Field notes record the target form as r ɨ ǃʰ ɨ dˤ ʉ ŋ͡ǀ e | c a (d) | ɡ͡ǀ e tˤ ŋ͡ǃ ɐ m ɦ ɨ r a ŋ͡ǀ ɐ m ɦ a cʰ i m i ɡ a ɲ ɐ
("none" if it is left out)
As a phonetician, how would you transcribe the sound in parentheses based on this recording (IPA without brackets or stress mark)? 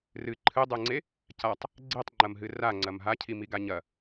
tˤ